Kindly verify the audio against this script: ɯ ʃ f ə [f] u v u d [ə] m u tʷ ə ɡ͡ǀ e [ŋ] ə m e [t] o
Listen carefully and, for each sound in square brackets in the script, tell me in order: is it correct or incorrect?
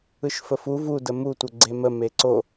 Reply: correct, correct, incorrect: m, incorrect: ǀ

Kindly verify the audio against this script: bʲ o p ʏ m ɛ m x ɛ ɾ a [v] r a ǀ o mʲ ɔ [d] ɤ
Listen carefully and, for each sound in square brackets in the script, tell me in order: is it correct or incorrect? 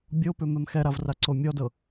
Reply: correct, correct

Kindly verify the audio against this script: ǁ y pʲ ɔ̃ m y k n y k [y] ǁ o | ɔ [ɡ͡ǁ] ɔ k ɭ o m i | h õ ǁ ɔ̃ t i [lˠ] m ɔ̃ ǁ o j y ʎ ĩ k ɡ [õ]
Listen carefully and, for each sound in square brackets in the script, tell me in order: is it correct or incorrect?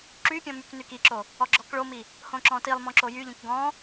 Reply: incorrect: i, correct, correct, incorrect: ɔ̃

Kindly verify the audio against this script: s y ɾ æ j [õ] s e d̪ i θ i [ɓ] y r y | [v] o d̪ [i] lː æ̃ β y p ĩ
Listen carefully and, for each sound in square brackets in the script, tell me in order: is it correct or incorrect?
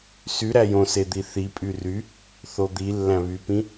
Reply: correct, incorrect: pʼ, incorrect: θ, correct

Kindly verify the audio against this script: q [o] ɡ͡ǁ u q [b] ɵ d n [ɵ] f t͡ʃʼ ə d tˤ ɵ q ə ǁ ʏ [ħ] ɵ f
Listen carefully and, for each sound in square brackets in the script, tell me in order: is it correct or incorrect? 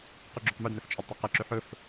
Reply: incorrect: ɵ, incorrect: m, correct, correct

